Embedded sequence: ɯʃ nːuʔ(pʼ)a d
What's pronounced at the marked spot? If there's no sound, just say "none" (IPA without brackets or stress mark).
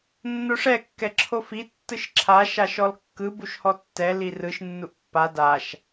pː